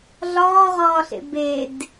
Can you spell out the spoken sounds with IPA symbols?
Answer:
ɮ ɒː ʁ ɒː ɬ ḛ b e d

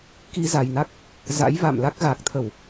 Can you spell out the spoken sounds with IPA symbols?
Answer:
k i˧ z a˨˩ j n a˦˥ k̚ | z a̰˧˥ j v a̰˧˨ m l a˦˥ k̚ ɣ a˨˩ k̚ t̪ʰ ə˧˩˨ w

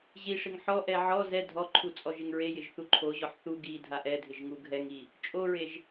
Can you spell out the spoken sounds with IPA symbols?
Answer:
ʑ i ʂ ɪ ŋ ħ ɔ ʔ ɛ ʕ ɔ z ɛ dʱ ɔ ǃʰ u t͡sʼ ɔ ʒ ɪ ŋ ɹ e j ɪ ʒ θ u ǃʰ o ʑ ɔ ħ θ u ɡ i dʱ a ʔ ɛ dʱ ɪ ʒ ŋ u ɡʱ ɛ ŋ i | t͡ʃʼ o ɹ e ʒ

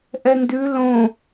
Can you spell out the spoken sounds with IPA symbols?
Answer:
ʔ ɛ n d ʉ l õ

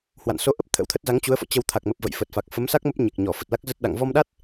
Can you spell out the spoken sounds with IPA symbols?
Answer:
h w a̰˧˨ n s o˨˦ ʔ ə˦˥ p̚ t̪ʰ ə̰˧˥ w t̪ʰ ə˦˥ t̚ z a˨˦ ŋ t͡ɕ u˨˦ ə̯ f ɔ̰˧˨ t͡ɕ ə˧ w t̪ʰ a˨˩ k̚ m ə˨˩ p̚ v ə̰˧˨ j f ə˨˩ t̚ f a˨˩ k̚ f ə˨˦ m s a˦˥ k̚ m ə˦˥ p̚ ɲ e˨˩ k̚ ɲ ɔ˧˩ f ə˨˩ t̚ l a˦˥ k̚ z ə˦˥ t̚ ɗ a̰˧˨ ŋ v ɔ˧ m ɗ a˦˥ t̚

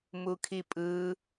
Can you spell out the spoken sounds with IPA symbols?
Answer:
m u kʰ i pʼ ɯ

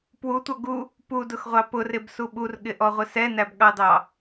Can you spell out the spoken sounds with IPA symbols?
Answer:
p w u tʷ ʌ ɡ u | p u d ʊ x ʁʷ ɑ p ʊ r ɪ b s u ɓ u r ɠ ɪ ʔ ɔ ʁʷ ɪ s ɛ n æ b ɠ ɑ d ɑ

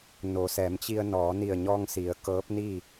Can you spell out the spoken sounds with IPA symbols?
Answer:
n o˩˧ s ɛː˩˧ m t͡ɕ i˧ ə̯ n ɔː˩˧ n i˧˩ ə̯ ɲ ɔː˧ ŋ s i˩˧ ə̯ k ɤː˧˥ p̚ n i˥˨

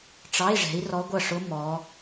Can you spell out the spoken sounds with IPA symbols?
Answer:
ʈ͡ʂ ɑ˧˥˧ i̯ ʐ ɛ̤˨˦ i̯ r ɔ˦˥ ɡʷ ʌ˥˩ ʂ ʊ˦˥ m ɔ˨˦

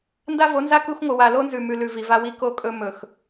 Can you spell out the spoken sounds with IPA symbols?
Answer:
n d a˦ v o˨˦ n z a˦ k u˦ x ŋʷ ɨ˨ w a˨ l o˦ n z ʉ˨ m ʉ˨ l ʉ˨ v i˨ v a˦ w i˦ k o˦ kʼ ɵ˦ m ɵ˨ x

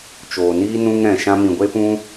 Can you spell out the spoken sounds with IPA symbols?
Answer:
t͡ʃ oː˨ n iː˦ n ũ˧ ŋ ɾ ɛ̃˨ ʃ ã˧ m ĩ˨ ɡʷ e˦ p ũ˦

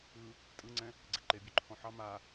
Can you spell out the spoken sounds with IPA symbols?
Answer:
ɯ | tʼ ɯ ŋ͡ǀ ɛ̃ | ɡ͡ǀ ɛ ǃ e bʲ ø ǃʰ ɔ̃ ħ ɑ m a

